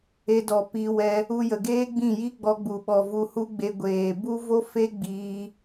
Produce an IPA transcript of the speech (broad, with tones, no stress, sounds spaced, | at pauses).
e˧ d ɔ˨ p i˧ w ɛ˧ | u˧ j ə˨ ɡ eː˦ ɡ͡b ĩ˦˨ j i˦ ɡ͡b ɔ˧ ɡ͡b u˨ ɓ ɔ˨ v u˧ h u˦ ɡ͡b e˧ ɡʷ eː˨ b u˦ v o˦ f e˦ ɡ͡b iː˧